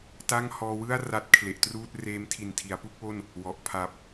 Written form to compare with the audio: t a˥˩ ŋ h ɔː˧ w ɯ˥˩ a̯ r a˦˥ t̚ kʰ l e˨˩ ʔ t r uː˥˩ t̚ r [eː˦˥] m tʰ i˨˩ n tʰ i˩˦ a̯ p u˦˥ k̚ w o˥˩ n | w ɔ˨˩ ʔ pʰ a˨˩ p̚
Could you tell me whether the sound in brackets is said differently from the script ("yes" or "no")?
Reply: no